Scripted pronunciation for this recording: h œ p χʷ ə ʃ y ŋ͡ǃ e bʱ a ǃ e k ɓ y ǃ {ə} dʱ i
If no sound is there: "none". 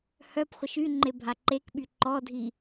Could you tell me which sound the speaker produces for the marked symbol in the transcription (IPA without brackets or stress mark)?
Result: ɔ